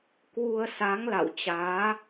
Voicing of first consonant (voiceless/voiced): voiceless